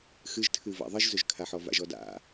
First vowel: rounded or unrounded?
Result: unrounded